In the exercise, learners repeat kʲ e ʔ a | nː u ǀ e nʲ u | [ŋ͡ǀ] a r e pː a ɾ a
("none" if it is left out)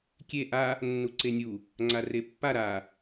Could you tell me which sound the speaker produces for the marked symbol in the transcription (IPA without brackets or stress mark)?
ŋ͡ǀ